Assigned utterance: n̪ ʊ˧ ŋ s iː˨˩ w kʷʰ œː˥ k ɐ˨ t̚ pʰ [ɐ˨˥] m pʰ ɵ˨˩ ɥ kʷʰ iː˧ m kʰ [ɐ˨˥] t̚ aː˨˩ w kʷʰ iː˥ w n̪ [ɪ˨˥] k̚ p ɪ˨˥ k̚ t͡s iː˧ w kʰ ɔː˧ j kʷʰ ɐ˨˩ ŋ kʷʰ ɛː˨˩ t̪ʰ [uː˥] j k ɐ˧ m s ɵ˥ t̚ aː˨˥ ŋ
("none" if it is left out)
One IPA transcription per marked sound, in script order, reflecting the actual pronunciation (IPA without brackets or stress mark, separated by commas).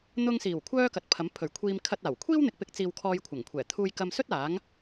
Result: ɐ˨˥, ɐ˧, ɪ˨˥, uː˧